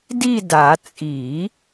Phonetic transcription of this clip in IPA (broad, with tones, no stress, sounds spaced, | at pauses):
d i˥˧ d a˨˩˦ t͡sʼ i˨˩˦